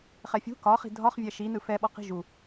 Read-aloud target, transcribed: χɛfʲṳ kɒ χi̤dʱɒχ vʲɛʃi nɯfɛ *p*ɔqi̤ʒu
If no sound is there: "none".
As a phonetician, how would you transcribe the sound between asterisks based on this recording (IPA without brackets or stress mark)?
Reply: ɓ